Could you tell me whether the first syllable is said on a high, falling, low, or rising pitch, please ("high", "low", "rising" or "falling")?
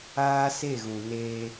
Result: high